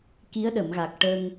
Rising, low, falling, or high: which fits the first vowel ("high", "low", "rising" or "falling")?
rising